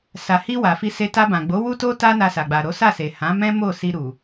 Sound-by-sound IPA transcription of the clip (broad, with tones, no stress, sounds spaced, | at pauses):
s a˨ h i˧ w a˨ f i˧ s e˧ t a˧ b ã˨ ɡ͡b o˨˦ w u˦ t o˦ t a˦ n a˧ s a˨ ɡ͡b a˨ ɾ o˨˦ s a˦˨ s e˨ h ã˨˦ m ɛ̃˦ m o˦˨ s i˧ ɾ u˨